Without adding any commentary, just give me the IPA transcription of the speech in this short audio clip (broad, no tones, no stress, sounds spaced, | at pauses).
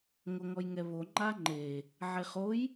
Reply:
ŋ o ŋ ɔ j ŋ ɛ β o ŋ͡ǃ a ŋ͡ǃ e | ʕ e χ o j